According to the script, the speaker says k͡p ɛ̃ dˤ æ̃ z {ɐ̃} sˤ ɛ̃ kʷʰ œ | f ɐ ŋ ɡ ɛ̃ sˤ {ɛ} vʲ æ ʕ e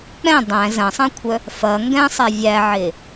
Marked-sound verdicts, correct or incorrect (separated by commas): correct, correct